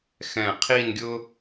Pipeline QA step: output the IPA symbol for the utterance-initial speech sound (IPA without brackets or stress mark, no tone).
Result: x